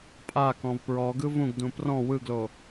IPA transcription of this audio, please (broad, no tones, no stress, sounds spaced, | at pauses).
pʼ a k ɔ̃ v p ɹ ɔ ɡ ɯ v ũ ɡ d ũ p r ɔ̃ w ɯ ɡ l o